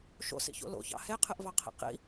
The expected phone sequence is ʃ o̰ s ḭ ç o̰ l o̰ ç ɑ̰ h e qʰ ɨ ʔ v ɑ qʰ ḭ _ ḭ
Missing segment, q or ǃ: q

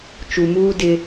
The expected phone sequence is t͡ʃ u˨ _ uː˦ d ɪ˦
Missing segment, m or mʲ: m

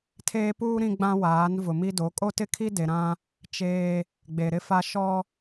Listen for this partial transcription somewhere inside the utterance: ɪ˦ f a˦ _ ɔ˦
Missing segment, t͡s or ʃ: ʃ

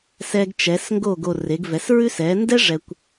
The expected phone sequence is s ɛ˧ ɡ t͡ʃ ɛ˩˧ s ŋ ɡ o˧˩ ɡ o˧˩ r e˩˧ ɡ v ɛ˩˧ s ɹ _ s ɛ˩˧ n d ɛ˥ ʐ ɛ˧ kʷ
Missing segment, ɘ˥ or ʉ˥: ʉ˥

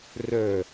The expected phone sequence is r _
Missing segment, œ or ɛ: œ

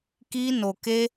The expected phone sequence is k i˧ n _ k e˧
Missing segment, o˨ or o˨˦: o˨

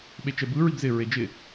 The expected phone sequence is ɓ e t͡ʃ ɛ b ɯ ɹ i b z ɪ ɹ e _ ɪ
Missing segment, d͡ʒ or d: d͡ʒ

